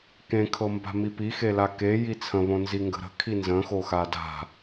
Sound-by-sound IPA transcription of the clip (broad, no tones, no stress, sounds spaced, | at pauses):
k ẽ kʰ ɤ m b a̤ m i p i x e l a k e j i t͡sʰ ə̃ β õ n z i ŋ ɡ ə̤ ɾ ə̤ kʰ i n z ə̃ x o x a d a̤